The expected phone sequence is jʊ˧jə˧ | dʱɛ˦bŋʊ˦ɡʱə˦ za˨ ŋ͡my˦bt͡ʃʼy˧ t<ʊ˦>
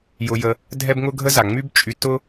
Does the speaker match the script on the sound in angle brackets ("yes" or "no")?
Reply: yes